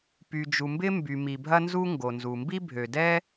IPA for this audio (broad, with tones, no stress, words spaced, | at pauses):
py˩d͡ʒu˩mbɪ˥mby˩ mi˩bʱɐ˥nzu˥ ŋɡo˩nzu˩mbi˥ bʱø˩dɛ˥